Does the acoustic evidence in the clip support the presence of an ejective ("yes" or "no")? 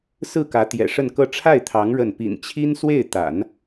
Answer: no